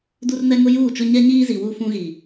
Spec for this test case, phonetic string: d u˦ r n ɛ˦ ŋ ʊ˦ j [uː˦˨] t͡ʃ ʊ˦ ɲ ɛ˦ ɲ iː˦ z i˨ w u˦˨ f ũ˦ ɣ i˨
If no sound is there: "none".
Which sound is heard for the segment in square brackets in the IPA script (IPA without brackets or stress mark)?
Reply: uː˦˨